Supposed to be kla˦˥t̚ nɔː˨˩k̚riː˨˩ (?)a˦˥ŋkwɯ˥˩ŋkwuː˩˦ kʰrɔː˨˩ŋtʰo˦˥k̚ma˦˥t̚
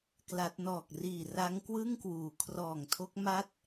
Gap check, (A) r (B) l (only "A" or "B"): A